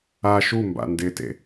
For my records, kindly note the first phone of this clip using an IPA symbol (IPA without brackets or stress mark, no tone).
a